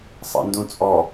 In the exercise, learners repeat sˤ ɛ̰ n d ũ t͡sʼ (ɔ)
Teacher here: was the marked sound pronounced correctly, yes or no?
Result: yes